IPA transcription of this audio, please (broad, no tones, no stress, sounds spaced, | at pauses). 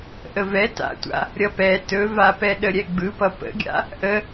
ʔ ə v ɛ t a̰ tʷ a̰ | ɾʲ ʌ p ɛ t ɵ v a p ɛ ɗ ə ɾʲ ɛ ɡ͡b ɯ p ʌ p ə̰ ɡʲ a̰ | ʔ ə